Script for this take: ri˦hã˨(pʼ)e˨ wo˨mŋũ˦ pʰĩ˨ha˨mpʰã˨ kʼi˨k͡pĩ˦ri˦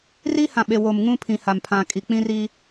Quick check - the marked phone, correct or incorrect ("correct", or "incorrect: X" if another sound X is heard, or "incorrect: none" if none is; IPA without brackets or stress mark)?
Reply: incorrect: ɓ